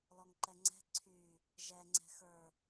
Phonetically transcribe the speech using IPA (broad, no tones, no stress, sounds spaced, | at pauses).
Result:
l ɔ ŋ ǃ ɛ ŋ͡ǀ ɛ̤ ǀʰ y | ʒ ɛ ŋ͡ǀ ɛ̤ x ə˞